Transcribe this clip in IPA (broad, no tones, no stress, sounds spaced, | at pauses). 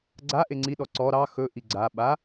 ɡ͡ǀ a ʔ e ŋ͡ǀ i ɗ ɔ ǀ ɔ ɾ ɑ x ɵ ʔ i ɡ͡ǀ a ɓ a